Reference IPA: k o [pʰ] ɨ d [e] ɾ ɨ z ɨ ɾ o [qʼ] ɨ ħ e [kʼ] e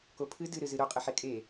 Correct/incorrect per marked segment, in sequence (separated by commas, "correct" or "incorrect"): correct, incorrect, correct, correct